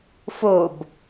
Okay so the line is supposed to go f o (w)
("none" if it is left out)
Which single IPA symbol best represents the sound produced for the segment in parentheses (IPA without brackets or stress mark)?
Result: b